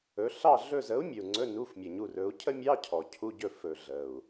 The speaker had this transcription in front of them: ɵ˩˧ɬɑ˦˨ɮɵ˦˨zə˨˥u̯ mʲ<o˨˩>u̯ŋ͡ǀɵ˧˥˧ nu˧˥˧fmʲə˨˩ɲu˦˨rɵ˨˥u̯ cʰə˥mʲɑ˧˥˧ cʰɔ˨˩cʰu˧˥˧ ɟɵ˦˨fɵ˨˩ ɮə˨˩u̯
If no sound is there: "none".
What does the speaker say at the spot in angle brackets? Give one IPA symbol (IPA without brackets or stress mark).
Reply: ɵ˨˩